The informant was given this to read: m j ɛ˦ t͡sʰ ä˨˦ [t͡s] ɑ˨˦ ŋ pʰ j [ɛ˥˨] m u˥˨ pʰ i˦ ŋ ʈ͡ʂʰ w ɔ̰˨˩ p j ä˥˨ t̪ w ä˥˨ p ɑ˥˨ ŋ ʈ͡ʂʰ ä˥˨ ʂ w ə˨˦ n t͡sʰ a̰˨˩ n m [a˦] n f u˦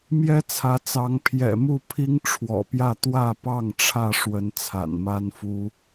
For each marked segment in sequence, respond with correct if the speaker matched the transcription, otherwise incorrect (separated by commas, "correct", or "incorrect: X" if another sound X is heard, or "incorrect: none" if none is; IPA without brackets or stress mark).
correct, incorrect: ɛ̰˨˩, correct